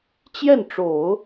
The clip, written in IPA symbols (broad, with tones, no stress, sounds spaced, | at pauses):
t͡ɕ j ɛ˥˩ n ʈ͡ʂ o˨˩˦ ʊ̯